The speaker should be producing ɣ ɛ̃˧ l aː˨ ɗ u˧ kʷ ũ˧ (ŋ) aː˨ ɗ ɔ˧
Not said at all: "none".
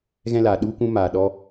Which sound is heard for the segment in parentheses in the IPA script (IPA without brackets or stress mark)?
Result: m